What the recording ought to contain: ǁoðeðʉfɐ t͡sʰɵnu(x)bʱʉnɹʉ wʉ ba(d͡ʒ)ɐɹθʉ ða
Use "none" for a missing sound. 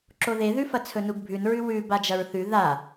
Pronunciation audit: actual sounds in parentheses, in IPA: ɡ, d͡ʒ

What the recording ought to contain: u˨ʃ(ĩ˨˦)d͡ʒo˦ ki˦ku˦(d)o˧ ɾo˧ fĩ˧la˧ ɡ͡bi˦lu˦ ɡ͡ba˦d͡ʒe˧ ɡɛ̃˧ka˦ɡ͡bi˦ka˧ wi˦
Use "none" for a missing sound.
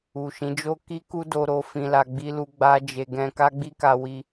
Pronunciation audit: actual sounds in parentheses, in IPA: ĩ˨˦, d

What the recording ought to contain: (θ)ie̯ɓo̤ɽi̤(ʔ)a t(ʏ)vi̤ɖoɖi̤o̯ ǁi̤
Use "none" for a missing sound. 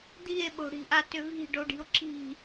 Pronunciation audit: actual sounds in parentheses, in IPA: d̪, ʔ, ʏ

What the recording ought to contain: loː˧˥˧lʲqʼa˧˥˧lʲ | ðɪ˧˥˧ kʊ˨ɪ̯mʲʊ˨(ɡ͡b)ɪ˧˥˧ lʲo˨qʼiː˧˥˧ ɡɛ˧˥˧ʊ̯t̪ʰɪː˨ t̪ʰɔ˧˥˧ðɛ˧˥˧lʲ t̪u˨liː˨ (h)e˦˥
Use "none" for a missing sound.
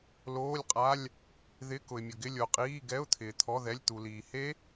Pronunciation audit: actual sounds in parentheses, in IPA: ɡ, h

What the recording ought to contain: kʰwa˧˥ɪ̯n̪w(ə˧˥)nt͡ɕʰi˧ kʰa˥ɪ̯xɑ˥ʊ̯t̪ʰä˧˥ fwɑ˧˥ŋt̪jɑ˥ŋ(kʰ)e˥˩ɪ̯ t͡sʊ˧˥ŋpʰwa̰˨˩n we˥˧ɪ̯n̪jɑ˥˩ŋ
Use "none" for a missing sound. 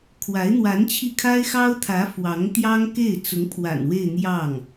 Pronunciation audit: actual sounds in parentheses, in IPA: a˧˥, k

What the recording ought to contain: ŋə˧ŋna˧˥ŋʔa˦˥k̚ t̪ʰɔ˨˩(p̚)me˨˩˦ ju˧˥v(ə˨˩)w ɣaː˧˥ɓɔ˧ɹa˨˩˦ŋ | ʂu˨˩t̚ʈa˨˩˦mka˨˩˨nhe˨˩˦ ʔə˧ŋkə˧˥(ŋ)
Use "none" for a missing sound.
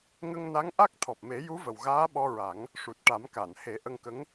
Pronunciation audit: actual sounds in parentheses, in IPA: p̚, ə˨˩, ŋ

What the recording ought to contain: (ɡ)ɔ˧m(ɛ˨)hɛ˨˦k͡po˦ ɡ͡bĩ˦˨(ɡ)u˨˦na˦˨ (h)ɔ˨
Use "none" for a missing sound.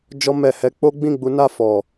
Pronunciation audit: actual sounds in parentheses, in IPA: d͡ʒ, ɛ˨, ɡ͡b, f

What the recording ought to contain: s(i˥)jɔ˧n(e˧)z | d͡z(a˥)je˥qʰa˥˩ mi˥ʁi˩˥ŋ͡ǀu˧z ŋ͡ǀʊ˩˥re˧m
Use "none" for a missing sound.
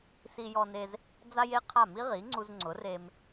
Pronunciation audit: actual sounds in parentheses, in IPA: i˧, e˧, a˥

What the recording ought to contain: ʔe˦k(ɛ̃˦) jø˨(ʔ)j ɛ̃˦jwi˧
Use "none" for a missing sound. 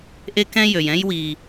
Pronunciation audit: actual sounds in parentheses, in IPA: ɛ̃˦, none

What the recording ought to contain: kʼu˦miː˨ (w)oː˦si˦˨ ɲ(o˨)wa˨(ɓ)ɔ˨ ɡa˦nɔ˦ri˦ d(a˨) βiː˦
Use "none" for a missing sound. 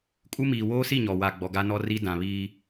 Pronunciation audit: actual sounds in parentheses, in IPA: w, ɔ˨, ɡ͡b, ã˨

